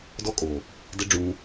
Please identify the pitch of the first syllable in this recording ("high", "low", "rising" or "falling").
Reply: high